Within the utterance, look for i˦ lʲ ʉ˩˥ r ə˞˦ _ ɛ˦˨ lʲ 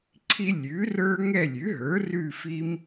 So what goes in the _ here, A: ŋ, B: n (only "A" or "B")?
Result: A